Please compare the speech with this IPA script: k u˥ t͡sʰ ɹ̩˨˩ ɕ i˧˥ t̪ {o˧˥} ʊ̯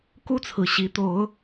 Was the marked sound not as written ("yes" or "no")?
no